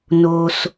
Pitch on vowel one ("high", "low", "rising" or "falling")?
low